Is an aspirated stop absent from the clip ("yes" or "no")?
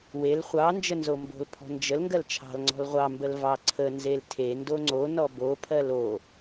no